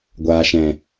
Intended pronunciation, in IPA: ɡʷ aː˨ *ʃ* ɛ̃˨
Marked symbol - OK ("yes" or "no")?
yes